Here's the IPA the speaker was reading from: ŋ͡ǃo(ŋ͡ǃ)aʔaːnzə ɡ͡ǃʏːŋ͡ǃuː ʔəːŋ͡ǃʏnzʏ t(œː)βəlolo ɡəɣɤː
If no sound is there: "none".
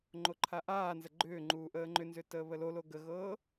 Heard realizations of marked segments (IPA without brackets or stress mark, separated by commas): ǃʰ, əː